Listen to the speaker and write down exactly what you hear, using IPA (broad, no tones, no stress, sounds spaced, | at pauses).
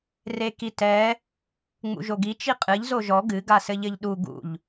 r e k i t ɛ | ŋ͡m ṵ ʒ o ɡ i t͡ʃ i qʼ ɨ ʎ z o ʒ ɔ ɡ ɨ ɡ a s ɘ ʎ ɘ ʎ ɗ u ɡ ṵ ʎ